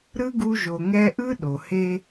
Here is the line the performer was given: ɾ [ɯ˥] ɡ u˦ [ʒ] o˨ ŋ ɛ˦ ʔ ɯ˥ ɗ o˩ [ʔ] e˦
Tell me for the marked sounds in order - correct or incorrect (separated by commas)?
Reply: correct, correct, incorrect